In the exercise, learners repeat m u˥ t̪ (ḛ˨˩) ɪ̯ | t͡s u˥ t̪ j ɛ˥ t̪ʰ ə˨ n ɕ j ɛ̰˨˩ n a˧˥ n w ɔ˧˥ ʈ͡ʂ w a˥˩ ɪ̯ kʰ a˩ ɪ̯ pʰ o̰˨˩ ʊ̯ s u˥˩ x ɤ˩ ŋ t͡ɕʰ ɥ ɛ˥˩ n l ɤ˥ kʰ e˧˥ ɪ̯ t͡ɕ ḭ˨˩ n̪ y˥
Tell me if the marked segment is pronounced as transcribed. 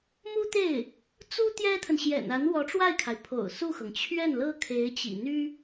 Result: no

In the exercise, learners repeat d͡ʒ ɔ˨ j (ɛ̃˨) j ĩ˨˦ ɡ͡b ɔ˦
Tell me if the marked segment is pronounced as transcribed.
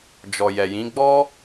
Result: no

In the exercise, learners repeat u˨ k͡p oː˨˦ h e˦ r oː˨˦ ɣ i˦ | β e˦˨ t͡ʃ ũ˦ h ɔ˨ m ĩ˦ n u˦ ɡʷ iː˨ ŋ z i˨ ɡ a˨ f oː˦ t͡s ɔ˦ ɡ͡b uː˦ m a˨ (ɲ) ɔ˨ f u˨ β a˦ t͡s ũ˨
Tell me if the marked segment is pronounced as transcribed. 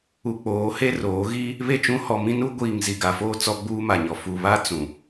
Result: yes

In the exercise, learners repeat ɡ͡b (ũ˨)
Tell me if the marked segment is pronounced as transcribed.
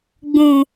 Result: yes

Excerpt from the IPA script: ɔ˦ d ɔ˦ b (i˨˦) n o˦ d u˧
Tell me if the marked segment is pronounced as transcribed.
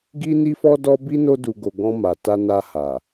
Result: no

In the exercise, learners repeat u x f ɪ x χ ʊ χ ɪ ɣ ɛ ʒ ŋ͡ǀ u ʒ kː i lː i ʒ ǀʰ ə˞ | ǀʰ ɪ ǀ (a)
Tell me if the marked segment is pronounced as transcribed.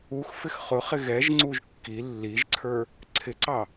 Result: no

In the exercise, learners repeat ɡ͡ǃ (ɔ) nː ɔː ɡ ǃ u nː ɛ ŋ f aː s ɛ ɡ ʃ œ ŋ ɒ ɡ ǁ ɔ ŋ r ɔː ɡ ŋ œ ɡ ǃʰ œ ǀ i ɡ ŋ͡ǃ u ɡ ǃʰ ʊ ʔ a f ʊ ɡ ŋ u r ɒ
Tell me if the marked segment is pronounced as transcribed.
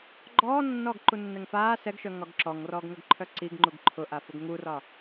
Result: no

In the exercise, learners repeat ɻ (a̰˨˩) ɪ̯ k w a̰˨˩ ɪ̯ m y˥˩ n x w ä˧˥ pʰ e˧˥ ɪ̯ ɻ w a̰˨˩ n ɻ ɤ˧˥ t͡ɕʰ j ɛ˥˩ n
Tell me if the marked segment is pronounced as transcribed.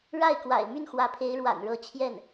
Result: no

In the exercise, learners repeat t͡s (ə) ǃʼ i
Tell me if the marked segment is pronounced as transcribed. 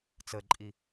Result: yes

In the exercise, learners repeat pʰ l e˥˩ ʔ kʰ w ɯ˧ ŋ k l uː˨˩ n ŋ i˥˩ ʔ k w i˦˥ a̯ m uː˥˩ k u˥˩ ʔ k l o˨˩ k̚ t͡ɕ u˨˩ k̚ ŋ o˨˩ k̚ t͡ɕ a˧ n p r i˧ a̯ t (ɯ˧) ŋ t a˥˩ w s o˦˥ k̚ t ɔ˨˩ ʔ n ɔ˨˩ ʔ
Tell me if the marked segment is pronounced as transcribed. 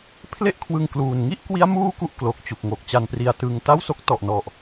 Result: yes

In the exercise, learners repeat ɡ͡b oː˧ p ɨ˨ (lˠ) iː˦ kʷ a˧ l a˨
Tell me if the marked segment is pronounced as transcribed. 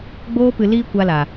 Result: no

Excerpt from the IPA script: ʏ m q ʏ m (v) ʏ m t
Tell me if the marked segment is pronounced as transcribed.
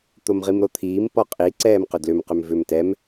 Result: yes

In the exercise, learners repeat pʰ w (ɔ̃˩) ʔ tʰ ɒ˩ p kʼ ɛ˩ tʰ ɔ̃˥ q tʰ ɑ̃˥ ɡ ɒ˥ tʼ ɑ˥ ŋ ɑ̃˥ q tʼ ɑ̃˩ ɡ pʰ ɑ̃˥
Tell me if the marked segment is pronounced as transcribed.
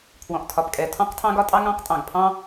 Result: yes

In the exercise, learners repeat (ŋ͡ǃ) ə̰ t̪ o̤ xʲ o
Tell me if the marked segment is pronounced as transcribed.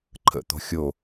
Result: no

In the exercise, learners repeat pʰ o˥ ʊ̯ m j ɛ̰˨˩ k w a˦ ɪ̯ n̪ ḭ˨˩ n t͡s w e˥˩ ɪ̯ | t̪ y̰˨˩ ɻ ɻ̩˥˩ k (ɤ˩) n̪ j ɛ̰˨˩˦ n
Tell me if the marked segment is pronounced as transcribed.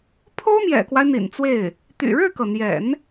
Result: yes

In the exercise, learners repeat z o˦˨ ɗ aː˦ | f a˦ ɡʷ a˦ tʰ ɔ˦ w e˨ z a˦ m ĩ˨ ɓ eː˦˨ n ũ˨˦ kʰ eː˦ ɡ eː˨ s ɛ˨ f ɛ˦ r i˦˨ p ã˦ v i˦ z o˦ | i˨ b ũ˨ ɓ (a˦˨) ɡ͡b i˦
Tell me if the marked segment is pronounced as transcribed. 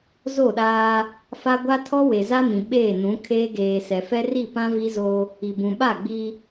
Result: yes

